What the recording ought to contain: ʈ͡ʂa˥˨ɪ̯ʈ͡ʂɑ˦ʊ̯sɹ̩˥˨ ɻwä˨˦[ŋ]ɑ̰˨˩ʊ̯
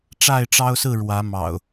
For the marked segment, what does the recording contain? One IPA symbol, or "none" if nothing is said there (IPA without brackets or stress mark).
m